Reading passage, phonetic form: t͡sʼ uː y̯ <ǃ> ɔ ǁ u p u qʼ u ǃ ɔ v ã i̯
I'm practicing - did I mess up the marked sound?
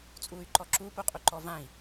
no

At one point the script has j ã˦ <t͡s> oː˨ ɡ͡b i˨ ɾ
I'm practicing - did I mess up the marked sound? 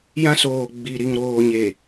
yes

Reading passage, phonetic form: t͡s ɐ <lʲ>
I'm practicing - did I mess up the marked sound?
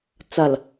yes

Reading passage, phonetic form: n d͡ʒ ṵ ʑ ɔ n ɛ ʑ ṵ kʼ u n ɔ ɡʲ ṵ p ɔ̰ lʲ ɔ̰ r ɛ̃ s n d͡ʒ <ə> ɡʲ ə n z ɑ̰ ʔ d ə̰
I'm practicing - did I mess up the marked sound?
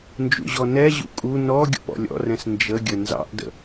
no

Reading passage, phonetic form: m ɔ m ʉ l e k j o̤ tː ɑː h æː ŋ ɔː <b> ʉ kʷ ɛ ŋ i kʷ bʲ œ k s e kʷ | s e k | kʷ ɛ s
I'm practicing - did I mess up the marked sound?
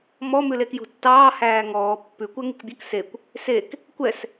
yes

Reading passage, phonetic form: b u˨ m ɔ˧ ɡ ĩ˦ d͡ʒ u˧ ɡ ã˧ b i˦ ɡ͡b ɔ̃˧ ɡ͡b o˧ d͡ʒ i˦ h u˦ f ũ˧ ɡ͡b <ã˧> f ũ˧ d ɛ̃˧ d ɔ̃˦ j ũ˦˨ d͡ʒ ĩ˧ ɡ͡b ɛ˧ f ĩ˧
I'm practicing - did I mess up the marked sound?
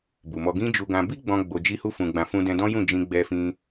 no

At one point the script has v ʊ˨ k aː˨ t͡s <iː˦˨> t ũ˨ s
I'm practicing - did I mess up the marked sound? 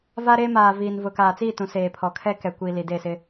no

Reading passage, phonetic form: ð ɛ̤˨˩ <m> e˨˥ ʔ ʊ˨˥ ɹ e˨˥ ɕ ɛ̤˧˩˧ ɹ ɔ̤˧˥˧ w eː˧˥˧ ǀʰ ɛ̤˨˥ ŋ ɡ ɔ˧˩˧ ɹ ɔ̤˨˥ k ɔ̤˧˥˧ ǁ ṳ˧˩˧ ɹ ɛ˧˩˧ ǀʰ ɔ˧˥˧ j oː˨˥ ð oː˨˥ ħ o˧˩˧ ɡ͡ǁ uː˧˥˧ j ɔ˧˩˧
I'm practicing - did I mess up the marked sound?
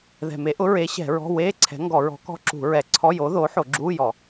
no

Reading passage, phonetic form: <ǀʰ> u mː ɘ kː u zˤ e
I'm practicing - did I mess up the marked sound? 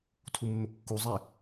yes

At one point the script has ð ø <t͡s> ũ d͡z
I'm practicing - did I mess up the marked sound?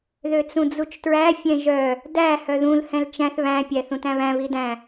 no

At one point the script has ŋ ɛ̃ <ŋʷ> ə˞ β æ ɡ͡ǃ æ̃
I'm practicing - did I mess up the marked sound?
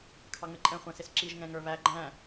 yes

